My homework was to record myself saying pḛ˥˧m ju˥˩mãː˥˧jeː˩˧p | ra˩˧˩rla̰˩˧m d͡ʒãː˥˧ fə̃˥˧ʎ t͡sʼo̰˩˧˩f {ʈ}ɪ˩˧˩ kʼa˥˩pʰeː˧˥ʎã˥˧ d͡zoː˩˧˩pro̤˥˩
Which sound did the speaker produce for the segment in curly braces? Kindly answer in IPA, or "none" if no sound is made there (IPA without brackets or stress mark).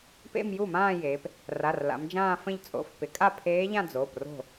p